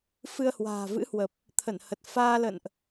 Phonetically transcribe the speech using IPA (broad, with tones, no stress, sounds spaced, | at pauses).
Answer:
f ɨ˧ ə̯ h w a̤ː˨˩ v ɨ̰˧˥ h w ə˨˩ p̚ | t̪ʰ ə˧˩ n h ə˨˩ t̚ f aː˧ l ə̰˧˨ n ʔ